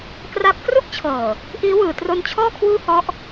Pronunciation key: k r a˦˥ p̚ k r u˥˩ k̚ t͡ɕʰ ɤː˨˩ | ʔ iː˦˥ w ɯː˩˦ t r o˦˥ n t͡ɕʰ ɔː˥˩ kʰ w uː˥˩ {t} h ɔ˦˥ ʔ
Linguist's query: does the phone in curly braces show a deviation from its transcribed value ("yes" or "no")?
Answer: yes